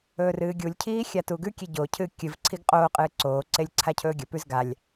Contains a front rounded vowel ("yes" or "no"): no